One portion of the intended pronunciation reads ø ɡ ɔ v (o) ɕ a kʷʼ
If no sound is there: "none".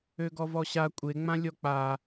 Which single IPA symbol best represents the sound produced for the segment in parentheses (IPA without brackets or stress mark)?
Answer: ɔ